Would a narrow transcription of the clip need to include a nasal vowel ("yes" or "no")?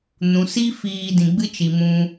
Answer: yes